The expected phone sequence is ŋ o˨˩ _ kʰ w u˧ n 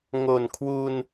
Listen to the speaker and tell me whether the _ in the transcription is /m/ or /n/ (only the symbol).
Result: n